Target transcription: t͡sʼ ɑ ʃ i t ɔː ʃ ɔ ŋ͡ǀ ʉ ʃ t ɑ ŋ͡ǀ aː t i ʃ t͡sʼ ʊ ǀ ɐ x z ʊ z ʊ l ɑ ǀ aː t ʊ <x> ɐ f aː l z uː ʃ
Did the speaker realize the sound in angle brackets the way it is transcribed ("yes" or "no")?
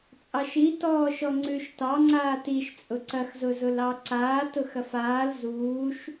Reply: yes